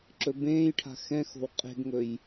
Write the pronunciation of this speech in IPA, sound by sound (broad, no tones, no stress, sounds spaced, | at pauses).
ǁ ɵ b ẽː j ʈʰ a̤ x ɛ̃ x o̤ w qʼ e̤ ɡ ŋ ɵ j